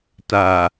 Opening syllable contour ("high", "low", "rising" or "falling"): low